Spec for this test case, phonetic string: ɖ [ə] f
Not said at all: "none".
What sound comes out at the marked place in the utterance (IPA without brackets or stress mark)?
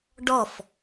ɔ